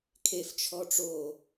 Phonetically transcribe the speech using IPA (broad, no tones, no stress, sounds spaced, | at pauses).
kʰ e f t͡ʃʰ ɔ ʈ͡ʂ o